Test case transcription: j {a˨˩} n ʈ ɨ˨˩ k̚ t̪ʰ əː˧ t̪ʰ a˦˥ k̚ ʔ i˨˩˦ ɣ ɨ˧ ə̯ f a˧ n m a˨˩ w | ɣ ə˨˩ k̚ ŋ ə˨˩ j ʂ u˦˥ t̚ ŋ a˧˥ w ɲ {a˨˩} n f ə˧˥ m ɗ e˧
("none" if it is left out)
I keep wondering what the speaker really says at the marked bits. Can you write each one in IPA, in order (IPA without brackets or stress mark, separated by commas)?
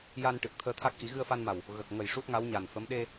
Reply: a˧, a˨˩